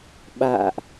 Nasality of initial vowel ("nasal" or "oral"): oral